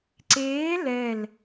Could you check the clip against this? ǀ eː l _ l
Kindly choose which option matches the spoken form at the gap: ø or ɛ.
ɛ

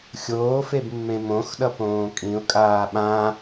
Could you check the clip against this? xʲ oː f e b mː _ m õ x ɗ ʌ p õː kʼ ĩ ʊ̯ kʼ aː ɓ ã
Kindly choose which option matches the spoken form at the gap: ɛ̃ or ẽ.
ẽ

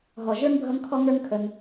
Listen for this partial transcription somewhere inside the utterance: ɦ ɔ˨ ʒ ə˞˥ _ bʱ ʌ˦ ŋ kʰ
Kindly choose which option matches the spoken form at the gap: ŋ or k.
ŋ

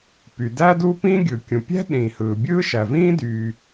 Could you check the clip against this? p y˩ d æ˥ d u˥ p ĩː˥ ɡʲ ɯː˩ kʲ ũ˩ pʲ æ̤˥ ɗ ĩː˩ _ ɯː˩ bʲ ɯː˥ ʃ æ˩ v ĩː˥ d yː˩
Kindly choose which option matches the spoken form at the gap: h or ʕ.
h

